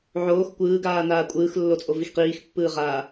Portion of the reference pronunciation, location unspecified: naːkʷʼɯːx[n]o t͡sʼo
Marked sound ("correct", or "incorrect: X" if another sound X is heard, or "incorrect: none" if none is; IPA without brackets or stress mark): incorrect: lː